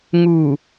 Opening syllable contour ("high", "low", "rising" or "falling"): low